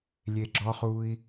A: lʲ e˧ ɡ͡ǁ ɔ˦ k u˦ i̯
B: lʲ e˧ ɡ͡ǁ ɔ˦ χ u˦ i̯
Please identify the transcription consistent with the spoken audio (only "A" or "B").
B